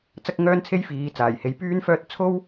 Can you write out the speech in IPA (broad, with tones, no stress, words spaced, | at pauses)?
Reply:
t͡sɐ˥k̚ŋœː˥nt͡sʰe˥jfiː˨˧ t͡saː˨˩jhe˨˧j pyː˥nfœː˥t̚ t͡sʰo˥w